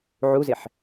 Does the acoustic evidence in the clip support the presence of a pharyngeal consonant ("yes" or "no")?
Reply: yes